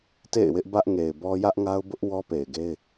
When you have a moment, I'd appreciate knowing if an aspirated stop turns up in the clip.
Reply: no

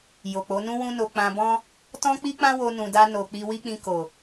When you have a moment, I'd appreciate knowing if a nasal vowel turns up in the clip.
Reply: yes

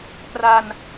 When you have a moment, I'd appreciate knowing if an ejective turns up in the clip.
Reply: no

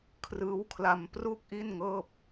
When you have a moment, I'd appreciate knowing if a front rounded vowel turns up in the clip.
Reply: no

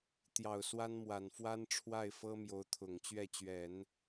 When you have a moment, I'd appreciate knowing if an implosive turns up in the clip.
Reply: no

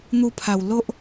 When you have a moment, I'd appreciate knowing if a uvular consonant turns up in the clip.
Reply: no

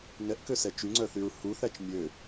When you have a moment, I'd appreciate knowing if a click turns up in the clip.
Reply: yes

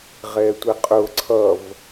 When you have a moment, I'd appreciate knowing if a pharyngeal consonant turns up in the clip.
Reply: no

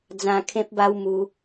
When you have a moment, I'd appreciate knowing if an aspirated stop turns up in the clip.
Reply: yes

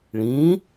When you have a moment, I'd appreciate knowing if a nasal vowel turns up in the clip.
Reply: yes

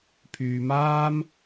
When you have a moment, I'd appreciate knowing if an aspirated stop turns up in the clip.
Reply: yes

